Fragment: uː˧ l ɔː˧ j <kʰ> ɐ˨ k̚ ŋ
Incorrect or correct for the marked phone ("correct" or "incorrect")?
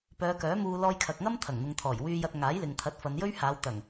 correct